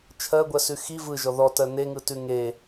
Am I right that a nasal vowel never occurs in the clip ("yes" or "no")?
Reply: yes